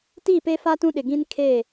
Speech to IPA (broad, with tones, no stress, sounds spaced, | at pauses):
t i˦˨ p e˦ f a˦ t ũ˦ ɗ ɪ˨ ɡ ĩ˦ n kʰ e˦˨